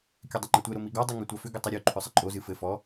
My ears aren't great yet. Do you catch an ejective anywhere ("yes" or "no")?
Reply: yes